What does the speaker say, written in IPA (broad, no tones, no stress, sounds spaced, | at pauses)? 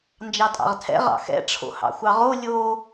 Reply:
n d͡ʒ ɑ tʼ ɑ̰ ʁ tʰ ɛ̰ ʁ ɑ̰ x ɛ̰ ʈ͡ʂʰ o̰ h ɑ̰ xʷ ɑ ʁ o lʲ o